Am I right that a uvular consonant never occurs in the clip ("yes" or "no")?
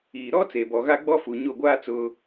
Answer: yes